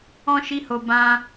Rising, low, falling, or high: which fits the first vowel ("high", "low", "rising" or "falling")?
high